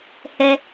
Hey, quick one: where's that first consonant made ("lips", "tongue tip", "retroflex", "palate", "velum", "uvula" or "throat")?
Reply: throat